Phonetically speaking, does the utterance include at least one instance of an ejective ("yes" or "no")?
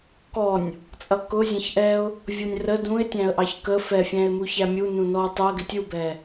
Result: yes